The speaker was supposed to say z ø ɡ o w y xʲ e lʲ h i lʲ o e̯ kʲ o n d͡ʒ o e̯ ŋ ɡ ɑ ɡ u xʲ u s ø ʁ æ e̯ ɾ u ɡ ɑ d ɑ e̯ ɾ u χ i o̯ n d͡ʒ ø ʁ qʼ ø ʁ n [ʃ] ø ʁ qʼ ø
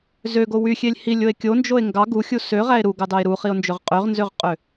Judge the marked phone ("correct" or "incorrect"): incorrect